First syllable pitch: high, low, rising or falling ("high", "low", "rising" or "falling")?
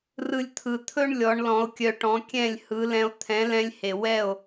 high